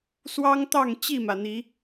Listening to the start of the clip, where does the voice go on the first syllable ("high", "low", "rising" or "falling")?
high